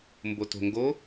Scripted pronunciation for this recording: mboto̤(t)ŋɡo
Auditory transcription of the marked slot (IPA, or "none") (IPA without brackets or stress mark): none